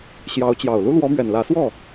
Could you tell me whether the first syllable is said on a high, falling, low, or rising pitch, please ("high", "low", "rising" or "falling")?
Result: rising